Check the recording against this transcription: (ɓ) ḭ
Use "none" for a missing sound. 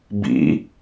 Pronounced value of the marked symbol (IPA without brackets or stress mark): b